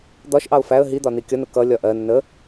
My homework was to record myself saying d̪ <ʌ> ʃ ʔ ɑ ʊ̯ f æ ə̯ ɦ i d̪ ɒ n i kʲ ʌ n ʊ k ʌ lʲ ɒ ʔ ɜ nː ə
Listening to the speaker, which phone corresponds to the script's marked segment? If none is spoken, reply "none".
ɒ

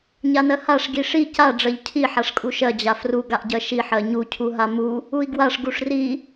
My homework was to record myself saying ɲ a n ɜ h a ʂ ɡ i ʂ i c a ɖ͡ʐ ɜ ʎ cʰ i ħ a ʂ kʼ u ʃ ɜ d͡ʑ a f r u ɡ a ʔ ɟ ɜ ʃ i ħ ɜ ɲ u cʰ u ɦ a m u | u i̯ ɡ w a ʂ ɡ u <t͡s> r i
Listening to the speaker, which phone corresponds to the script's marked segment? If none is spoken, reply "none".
ʂ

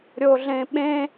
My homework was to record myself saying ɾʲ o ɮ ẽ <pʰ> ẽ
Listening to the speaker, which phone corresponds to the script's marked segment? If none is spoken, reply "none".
ɓ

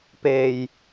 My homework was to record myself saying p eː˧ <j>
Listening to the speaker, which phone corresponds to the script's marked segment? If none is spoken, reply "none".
j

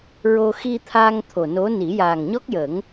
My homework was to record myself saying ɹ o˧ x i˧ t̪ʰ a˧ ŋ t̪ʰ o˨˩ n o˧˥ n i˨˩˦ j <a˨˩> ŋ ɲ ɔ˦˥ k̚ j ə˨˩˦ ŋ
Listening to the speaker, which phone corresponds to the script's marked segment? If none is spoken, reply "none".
aː˨˩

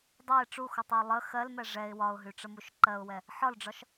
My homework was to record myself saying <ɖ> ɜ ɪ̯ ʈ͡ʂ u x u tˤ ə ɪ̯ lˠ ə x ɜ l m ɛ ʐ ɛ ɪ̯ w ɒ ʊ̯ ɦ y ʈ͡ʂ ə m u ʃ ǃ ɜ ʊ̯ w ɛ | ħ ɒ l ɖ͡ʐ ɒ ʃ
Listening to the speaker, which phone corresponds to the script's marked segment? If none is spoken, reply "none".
dˤ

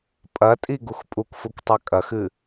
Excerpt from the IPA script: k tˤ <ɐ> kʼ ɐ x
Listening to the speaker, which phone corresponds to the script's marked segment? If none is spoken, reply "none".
a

